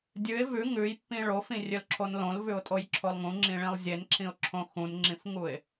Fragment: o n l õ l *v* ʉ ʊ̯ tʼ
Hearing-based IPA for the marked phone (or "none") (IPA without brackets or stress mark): v